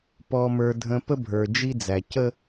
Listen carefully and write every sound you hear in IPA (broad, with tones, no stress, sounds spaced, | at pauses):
p ɔ˨ m ə˞˨ dʱ ə̃˨ p ə˦ bʱ ə˞˨ d͡ʒ i˦ d͡z æ˨ c ə˦